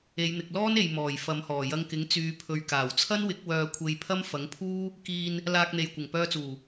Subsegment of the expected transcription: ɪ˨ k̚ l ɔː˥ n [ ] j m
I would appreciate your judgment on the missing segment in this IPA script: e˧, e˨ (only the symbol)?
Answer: e˨